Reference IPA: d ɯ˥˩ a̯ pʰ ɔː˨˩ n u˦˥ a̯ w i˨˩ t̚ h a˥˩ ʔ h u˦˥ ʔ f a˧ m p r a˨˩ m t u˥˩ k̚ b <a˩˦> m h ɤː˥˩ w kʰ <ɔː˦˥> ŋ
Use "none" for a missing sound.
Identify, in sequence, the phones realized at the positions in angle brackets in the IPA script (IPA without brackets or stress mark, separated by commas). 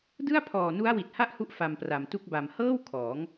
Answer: a˧, ɔː˩˦